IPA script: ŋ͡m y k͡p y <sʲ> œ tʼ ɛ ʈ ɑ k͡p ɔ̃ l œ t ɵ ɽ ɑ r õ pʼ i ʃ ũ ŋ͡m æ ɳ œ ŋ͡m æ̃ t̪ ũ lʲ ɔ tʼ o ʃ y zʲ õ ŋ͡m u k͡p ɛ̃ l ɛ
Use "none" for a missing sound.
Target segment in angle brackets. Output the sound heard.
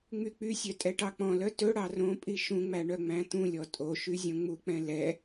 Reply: sʲ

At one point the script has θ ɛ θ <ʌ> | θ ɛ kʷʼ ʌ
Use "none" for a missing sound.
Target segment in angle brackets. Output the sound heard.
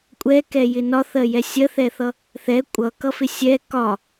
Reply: ʌ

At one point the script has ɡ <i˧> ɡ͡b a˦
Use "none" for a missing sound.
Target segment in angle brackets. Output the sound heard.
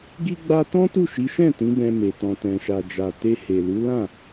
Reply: i˦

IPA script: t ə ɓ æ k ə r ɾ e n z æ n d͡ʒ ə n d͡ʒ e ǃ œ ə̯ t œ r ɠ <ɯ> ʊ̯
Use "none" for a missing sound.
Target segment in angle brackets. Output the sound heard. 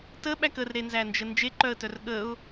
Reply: ə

